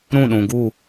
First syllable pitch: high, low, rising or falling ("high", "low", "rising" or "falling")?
falling